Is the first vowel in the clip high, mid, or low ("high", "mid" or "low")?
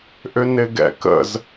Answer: high